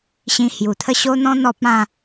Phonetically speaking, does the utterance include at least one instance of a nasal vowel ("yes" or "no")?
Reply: yes